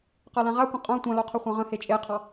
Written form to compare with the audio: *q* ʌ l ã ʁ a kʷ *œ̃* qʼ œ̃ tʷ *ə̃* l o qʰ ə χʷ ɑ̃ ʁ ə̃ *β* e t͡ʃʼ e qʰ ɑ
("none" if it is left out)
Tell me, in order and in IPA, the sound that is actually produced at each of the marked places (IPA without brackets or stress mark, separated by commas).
q, ə̃, ã, h